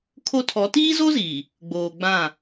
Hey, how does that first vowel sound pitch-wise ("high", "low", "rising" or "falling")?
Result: high